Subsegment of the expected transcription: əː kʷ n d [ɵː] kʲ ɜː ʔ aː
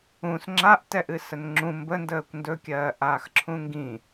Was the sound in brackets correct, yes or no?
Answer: no